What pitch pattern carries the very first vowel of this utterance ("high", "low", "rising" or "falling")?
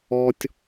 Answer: high